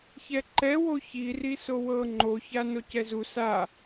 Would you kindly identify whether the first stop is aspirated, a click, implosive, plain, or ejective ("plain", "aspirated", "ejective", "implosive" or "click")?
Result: click